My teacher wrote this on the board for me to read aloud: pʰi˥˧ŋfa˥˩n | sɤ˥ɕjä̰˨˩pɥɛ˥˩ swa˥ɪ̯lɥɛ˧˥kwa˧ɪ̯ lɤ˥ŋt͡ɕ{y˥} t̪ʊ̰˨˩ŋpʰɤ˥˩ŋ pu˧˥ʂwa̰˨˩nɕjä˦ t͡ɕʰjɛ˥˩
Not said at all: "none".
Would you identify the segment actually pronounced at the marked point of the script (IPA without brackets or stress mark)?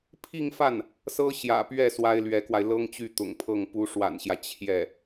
y˥˩